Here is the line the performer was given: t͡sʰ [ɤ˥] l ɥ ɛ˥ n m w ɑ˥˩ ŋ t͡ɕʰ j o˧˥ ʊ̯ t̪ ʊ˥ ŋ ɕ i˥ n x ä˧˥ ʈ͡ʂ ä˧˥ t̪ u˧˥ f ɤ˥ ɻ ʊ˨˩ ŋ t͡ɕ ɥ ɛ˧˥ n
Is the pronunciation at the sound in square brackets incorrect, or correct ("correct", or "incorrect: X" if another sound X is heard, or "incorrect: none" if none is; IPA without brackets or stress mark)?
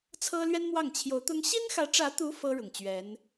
correct